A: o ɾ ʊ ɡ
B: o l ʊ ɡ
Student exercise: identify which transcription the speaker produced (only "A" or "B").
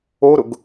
A